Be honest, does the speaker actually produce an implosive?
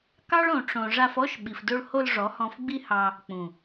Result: yes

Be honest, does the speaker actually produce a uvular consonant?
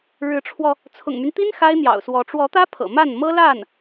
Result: no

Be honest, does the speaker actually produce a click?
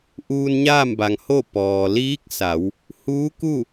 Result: no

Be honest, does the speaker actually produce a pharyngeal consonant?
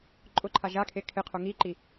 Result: no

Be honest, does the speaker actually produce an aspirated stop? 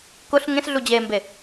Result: no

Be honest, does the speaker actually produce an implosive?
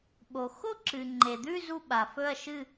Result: yes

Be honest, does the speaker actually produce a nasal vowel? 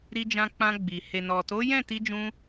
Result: yes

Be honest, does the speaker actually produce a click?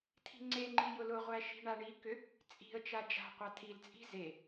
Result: yes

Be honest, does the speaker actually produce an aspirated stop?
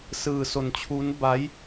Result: yes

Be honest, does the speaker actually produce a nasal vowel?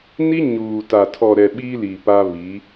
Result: no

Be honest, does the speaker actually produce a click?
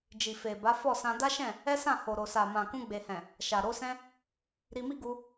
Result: no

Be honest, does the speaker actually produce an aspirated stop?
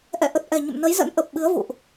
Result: no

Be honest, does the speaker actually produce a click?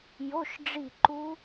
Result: yes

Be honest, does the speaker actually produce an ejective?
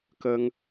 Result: no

